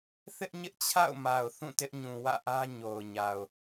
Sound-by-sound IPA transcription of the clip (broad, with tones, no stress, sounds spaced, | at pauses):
θ ɪ˦ ʔ ɲ ɪ˦ ʔ t͡ɕʰ a̰˦˨ ʊ̯ m a˨ ʊ̯ θ ũ˦˨ t ɪ˦ ʔ ɲ ũ˨ w ä̰˦˨ ʔ ä˦ ɲ o˨ ʊ̯ ɲ a˨ ʊ̯